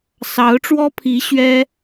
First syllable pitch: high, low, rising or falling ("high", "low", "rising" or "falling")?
rising